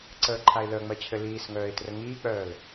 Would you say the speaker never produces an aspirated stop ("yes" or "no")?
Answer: no